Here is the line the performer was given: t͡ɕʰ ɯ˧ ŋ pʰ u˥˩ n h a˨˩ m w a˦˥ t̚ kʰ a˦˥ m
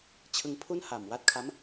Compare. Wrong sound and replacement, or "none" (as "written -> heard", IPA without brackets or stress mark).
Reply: none